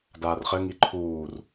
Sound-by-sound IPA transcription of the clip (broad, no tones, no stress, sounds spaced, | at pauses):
d aː r χ ɘ ŋ i ǃʰ uː r